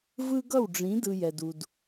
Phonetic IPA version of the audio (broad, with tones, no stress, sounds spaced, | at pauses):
v ɯ˦ ɡ ʌ˦˨ w ɖ͡ʐ ĩ˨˦ d ɯ˧ j ɛ˨ d u˨ d